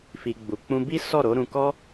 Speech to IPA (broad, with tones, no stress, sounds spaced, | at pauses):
f i˧ ɡ͡b u˨ k͡p ũ˧ b i˦ s ɔ˦˨ ɾ o˨˦ ɾ ũ˧ k ɔ˦